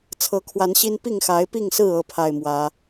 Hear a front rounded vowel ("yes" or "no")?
no